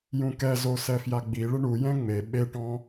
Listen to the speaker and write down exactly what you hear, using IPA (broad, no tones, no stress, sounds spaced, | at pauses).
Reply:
j ũ k ɛ z o s ɛ f j a ɡ͡b i ɭ ɪ ɳ u j ɛ̃ ŋ͡m e ɓ e ʈ ɔ̃